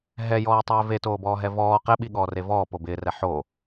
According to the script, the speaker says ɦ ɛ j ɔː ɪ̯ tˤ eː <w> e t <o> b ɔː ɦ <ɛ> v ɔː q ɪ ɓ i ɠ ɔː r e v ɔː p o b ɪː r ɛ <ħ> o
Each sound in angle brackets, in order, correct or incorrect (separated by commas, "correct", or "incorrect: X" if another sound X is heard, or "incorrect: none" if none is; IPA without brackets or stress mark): incorrect: v, incorrect: oː, correct, correct